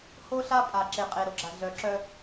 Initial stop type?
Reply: ejective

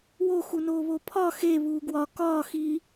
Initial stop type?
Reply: aspirated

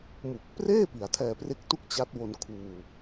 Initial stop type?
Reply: plain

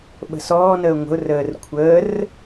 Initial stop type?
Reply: implosive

